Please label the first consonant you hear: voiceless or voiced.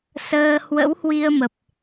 voiceless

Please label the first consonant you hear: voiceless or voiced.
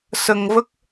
voiceless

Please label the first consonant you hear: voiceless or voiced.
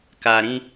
voiceless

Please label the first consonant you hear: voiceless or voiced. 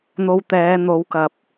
voiced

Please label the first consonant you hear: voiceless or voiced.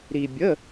voiced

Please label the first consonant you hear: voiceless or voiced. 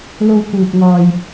voiced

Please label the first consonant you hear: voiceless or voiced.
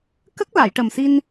voiceless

